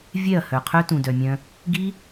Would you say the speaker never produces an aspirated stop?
no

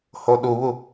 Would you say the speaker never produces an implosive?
no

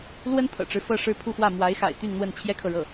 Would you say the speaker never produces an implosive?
yes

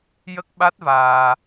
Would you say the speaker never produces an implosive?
no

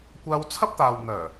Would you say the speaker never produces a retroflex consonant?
yes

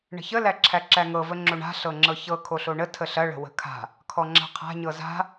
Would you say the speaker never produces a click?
no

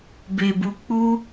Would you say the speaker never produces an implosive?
yes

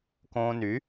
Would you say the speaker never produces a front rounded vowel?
no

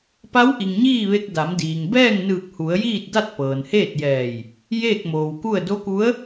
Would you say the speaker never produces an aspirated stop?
yes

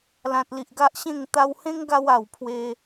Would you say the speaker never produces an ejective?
yes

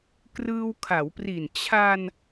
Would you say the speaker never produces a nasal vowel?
yes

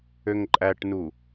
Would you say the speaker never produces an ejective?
no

